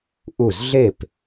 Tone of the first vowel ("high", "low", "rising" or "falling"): falling